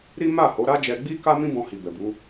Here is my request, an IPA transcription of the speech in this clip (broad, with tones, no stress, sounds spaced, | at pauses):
ɾ i˦ m a˦˨ h o˨˦ ɾ a˦ d͡ʒ ɛ˧ ɡ͡b i˦ k a˦ m ĩ˦ b ɔ̃˧ h i˨ b ɛ˨ b u˨˦